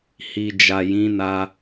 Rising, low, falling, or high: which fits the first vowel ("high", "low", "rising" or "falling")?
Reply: low